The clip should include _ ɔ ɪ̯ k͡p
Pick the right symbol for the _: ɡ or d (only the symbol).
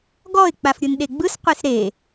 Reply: ɡ